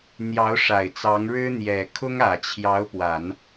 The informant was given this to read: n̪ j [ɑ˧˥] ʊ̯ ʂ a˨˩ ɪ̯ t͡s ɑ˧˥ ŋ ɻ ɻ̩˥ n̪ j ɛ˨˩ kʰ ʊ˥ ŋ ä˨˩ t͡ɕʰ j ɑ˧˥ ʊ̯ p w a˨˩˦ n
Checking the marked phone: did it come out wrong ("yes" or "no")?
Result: no